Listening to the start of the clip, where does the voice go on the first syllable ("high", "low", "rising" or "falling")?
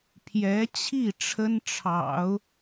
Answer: rising